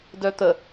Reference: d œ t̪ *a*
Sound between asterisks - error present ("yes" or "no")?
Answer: yes